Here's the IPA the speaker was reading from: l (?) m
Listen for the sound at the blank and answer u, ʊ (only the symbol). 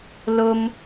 ʊ